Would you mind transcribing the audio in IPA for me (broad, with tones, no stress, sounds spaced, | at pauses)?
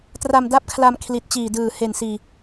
t r a˧ m d a˥˩ p̚ kʰ l a˧ m kʰ l i˨˩ t̚ t͡ɕ iː˨˩ d ɯː˨˩ h e˨˩ n s iː˨˩